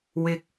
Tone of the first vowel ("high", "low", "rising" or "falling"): low